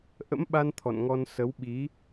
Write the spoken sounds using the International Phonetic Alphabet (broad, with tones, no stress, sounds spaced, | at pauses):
ʔ ə̰˧˥ m ɓ a˧ n t̪ʰ ɔ̰˧˨ n ŋ ɔ˧ n s ə˨˦ w ɓ i˨˦